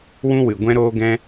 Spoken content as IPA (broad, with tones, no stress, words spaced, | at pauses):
wũ˦wɨ˨ ɡʷɛ̃˦ɾoː˦ɡɛ̃˦